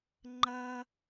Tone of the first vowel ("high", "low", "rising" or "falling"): high